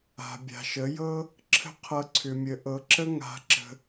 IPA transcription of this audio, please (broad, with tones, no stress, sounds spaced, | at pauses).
a̤˨ bʲ a̤˨ ʃ ə˨˦ j ɤ˦ | ǁʰ ə̤˦ qʰ ɤ˧ ǀʰ ʏ˨ mʲ ə˨ ʔ ɤ˨˦ ǁ ə˦ ŋ a̤˧ ǁ ə̤˧